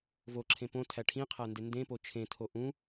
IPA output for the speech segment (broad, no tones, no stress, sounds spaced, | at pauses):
v o ǁʰ ẽ p õ tʰ æ ʈʰ ĩ qʰ æ n d e n d ẽ p o t͡ʃʰ ẽ tʰ o ʔ ũ